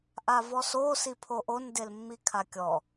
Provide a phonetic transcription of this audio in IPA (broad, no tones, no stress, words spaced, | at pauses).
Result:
ʔavɔso sipʰoʔon delmːikʰakʲɔ